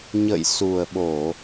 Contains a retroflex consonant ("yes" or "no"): no